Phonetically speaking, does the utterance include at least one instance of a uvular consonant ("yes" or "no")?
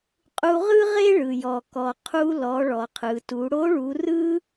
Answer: yes